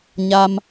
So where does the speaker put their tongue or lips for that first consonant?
palate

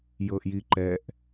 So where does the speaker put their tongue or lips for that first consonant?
palate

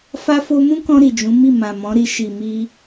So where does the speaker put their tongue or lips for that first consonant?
lips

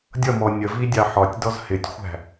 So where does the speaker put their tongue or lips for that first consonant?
tongue tip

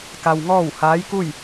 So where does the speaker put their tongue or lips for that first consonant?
velum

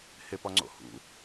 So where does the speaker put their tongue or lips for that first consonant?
throat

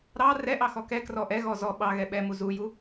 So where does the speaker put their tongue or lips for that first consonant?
tongue tip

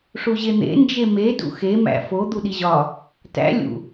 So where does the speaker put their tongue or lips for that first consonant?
retroflex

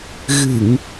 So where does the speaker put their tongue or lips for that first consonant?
velum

